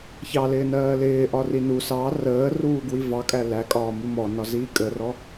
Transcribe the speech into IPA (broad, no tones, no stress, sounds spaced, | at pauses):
ç ɑ l ɪː n ɜː l ɪː ʔ ɒ r i n u s ɑ r əː r uː ɡ w i v ɑ kʼ æ l æ kʼ ɒː m u m ɔ n ɒ z iː kʼ ə r ɔ